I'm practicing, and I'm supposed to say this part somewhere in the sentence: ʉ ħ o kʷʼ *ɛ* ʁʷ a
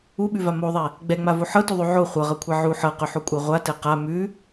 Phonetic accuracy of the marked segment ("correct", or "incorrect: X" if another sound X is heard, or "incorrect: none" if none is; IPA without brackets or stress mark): correct